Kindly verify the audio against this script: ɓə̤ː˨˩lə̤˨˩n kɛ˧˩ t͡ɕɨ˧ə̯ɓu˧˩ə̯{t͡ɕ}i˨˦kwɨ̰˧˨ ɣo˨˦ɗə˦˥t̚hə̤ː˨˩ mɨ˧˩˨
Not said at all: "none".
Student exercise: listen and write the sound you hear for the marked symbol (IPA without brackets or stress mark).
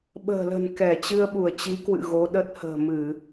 t͡ɕ